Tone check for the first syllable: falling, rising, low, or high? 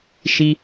high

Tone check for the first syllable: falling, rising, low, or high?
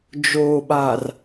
low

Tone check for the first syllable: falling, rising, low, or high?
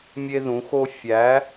high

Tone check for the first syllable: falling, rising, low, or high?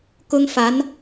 high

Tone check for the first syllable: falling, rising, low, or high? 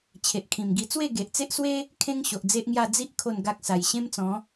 low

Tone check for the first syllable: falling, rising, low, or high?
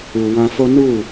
low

